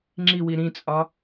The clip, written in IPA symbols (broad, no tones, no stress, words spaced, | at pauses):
ŋ͡ǁiwi ɾĩt͡sʼɒ